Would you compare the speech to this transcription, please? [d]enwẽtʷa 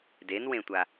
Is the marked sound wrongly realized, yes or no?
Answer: no